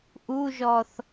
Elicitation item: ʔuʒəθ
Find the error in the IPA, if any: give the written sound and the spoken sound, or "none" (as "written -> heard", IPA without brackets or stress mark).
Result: ə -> ɔ